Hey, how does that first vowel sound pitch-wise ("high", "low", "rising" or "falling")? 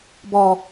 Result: low